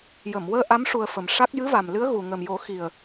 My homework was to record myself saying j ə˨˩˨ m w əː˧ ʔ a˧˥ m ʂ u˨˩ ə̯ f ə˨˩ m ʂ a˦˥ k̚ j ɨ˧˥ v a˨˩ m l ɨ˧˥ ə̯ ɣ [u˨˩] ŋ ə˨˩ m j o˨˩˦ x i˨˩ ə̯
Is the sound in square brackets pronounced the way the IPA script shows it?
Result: yes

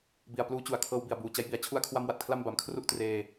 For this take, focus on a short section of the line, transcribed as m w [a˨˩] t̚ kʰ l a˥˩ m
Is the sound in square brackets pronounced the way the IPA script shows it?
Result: yes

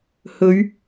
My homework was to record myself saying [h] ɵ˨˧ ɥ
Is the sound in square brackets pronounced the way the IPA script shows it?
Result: yes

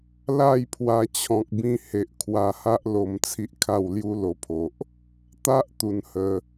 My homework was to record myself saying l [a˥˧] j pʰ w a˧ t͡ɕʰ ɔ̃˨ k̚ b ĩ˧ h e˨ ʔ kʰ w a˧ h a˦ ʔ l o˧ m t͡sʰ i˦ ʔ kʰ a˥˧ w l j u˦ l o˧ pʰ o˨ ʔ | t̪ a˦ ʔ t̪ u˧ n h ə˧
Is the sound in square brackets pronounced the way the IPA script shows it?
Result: yes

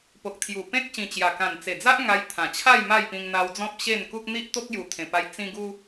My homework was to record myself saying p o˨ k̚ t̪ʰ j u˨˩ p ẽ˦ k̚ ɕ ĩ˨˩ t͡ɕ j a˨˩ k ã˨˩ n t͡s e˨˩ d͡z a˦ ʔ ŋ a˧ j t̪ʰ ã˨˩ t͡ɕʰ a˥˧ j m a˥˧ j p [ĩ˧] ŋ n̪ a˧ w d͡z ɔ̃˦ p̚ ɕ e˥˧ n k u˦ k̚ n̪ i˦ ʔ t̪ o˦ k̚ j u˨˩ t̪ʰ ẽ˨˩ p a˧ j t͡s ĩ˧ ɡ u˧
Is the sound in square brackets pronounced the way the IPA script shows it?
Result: yes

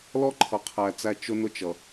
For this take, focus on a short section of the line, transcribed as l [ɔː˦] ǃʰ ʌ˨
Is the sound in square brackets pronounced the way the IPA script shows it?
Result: no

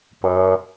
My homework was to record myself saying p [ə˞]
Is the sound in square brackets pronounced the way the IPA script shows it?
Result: no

